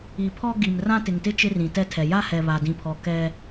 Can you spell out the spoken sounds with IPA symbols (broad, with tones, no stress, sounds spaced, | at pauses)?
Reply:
i˨ pʰ ɔ˦ ɡ i˨ m r ã˦ t ɪ˨ ŋ t ɪ˦ t͡ʃ ɪ˦ r ĩ˨ t ɛ˦ tʰ ɛ˨ j a˦ h ɛ˨ β a˨ d ĩ˨ pʰ ɔ˨ k ɛ˦